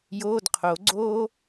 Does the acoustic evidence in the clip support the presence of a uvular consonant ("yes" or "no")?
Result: yes